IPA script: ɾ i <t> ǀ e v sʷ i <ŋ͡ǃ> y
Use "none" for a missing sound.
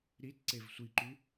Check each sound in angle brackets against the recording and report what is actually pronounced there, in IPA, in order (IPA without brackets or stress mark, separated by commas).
t, ǃ